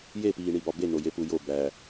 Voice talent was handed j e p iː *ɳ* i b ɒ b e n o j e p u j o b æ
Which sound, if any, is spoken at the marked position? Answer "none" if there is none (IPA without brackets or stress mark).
ɳ